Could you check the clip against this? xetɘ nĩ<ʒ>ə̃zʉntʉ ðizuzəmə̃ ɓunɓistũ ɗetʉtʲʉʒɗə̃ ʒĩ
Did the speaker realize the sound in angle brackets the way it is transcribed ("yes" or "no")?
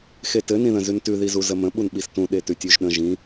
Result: no